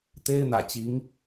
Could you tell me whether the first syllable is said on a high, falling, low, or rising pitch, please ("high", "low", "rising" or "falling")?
high